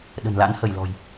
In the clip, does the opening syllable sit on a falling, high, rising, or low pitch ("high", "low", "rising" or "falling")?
low